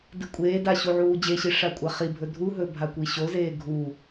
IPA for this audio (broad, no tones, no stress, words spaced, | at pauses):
dɨkʷʼeːda ɕuʕuːd͡ʑeɕi ʂakʷʼaχibʱɵ dʱuɦɵ bʱakʷiɕozeː ɡʱu